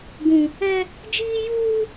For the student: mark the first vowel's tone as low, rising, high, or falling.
low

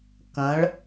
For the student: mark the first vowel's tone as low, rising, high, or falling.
rising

